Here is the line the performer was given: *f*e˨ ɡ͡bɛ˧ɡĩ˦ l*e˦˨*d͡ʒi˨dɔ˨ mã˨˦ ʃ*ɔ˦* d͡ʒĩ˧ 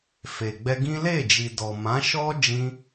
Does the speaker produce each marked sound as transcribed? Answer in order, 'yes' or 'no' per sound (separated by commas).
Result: yes, yes, yes